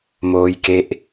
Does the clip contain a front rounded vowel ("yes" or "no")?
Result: no